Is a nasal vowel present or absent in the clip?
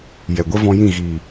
present